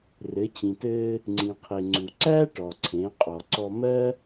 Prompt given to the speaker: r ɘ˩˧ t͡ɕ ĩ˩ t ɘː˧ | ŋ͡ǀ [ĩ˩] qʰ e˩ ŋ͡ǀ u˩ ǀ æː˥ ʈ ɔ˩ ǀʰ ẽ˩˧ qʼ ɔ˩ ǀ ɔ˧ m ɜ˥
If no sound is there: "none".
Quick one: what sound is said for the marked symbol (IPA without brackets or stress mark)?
ĩ˩